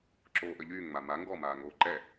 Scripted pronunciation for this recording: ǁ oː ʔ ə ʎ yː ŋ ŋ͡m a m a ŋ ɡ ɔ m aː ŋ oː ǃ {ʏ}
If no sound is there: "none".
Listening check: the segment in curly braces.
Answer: ɛ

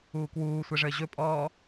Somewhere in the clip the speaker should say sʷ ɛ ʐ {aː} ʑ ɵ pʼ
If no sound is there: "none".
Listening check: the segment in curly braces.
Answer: əː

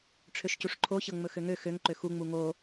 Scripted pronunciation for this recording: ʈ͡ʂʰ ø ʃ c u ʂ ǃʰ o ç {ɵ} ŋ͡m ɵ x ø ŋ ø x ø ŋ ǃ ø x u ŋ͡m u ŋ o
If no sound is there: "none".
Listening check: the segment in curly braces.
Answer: ɤ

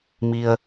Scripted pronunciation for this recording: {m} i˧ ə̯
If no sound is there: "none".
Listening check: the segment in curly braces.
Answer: m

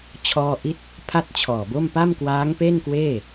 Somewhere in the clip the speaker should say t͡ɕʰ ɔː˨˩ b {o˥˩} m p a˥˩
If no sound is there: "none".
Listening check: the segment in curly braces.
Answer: o˥˩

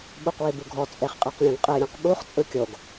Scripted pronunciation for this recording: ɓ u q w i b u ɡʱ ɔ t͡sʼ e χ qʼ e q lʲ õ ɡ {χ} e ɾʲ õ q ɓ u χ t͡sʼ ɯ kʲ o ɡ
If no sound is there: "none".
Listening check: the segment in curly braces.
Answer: qʼ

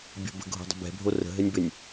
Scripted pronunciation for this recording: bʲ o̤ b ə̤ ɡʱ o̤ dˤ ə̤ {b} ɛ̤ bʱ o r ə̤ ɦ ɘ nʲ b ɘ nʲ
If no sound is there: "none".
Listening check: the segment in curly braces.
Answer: b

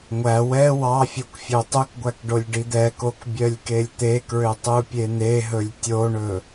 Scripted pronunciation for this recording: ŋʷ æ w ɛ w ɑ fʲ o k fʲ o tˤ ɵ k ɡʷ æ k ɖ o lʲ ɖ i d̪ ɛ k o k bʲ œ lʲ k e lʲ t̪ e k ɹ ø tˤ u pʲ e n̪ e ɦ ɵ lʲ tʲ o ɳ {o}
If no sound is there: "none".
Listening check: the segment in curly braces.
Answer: ɵ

